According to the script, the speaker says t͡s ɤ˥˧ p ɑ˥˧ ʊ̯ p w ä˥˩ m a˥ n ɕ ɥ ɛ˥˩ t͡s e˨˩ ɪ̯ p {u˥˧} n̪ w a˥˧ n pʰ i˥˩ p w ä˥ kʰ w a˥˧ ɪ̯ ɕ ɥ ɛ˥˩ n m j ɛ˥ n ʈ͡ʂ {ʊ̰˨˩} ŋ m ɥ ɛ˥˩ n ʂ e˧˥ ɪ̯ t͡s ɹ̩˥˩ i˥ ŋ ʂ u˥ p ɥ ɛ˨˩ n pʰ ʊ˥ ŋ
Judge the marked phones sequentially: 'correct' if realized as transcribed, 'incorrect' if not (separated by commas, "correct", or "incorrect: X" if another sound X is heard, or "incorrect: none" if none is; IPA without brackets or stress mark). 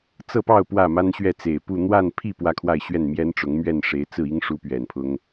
correct, incorrect: ʊ˧˥